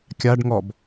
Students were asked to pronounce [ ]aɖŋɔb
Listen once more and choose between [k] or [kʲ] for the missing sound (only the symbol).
kʲ